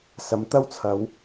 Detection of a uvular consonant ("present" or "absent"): absent